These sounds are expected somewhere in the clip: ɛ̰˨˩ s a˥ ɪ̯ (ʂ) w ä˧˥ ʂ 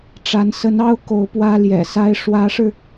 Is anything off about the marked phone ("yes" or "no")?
no